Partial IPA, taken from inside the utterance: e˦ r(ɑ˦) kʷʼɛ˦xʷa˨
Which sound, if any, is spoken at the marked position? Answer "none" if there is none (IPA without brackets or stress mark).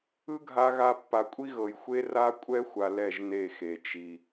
a˦